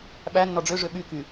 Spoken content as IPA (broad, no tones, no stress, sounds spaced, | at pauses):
ɓ æ nː ɔ ɖ͡ʐ ø ʐ ø ɓ y k y